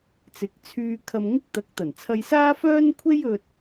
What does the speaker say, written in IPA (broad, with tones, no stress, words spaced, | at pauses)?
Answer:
t͡sɪ˨˥k̚t͡sʰyː˧ kʰɐ˧mŋɪ˥k̚t̪ɐ˨˥k̚ t̪ɐ˨˩nt͡sʰɐ˧jsaː˥fœː˥n kʷʰe˥j ɵ˧t̚